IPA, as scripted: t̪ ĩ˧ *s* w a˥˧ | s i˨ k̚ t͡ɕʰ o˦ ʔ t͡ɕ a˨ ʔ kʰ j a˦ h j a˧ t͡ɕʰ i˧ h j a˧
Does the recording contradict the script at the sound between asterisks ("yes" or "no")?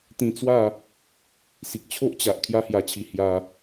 yes